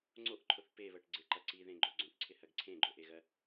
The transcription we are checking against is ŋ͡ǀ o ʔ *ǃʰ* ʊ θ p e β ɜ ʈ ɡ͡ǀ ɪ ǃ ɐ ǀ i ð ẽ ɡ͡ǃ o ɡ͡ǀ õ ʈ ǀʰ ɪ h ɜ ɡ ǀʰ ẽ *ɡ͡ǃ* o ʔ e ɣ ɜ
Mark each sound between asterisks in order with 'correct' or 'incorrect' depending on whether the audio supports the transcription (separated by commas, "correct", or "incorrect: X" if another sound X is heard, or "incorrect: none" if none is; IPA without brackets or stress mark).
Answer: correct, correct